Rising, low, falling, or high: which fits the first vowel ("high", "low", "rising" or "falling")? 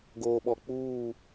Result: low